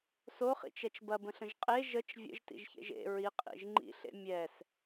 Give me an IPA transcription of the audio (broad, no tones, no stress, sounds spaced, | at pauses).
s o χ ḭ t͡ʃ ɛ t͡ʃ b ɐ b ə̃ ɬ ə̃ ʒ qʼ e ʒ ə t͡ʃ vʲ ə̰ ʒ t ḭ ʒ ç ḛ ʒ ḛ ɹ i qʼ ḭ ʒ ŋ͡ǃ ḭ ɬ ḛ mʲ ɛ s